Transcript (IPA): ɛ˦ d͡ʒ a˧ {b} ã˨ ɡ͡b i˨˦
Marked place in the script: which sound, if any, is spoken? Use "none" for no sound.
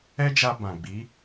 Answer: b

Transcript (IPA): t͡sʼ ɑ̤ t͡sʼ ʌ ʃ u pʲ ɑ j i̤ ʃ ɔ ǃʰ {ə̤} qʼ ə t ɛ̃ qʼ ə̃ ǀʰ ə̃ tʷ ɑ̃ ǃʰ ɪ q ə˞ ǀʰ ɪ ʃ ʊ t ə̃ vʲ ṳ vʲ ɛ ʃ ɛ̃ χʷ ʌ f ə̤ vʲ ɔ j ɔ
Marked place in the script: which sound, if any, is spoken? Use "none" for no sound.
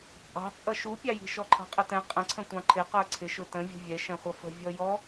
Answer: ɑ̤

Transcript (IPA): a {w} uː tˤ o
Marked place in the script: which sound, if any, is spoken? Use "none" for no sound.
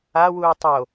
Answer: w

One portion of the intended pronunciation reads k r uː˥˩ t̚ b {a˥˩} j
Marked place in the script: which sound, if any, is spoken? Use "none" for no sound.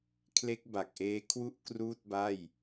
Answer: a˥˩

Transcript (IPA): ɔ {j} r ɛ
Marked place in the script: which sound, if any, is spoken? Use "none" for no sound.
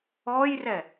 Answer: j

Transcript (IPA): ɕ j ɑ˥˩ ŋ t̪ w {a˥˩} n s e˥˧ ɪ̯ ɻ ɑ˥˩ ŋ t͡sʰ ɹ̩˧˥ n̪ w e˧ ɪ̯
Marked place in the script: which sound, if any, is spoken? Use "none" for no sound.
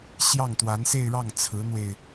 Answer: a˧˥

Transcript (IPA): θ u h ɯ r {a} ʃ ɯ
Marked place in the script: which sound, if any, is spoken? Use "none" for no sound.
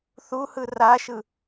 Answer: a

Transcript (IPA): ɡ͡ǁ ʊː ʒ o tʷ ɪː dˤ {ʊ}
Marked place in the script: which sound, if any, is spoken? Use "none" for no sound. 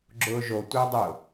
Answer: ʊ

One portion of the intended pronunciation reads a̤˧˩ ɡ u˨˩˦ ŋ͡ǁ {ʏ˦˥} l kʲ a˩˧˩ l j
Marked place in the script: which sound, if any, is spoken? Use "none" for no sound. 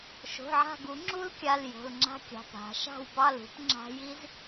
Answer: u˦˥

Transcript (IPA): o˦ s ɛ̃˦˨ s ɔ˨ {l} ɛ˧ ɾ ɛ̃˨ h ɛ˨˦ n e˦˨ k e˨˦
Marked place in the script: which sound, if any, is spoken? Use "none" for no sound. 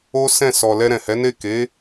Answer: l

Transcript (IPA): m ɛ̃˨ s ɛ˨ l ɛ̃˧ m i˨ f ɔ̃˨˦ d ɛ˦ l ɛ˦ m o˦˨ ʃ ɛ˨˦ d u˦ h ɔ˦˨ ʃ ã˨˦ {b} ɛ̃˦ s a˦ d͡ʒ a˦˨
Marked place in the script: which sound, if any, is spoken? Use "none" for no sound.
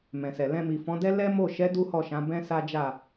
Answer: b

